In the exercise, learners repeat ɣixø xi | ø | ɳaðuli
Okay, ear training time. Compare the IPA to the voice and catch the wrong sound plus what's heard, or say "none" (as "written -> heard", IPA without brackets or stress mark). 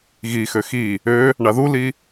none